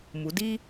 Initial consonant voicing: voiced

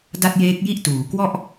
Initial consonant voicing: voiced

